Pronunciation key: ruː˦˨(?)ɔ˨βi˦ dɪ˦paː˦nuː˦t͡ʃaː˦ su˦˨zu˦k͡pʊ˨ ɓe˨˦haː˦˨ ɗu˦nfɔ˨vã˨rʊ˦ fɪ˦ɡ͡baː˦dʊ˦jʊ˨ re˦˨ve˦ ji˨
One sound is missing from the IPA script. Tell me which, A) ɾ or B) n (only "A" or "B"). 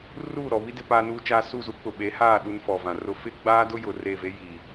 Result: A